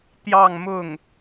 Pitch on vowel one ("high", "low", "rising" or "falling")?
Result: falling